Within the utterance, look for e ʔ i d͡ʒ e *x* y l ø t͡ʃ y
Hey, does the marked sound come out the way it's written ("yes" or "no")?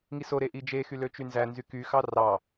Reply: yes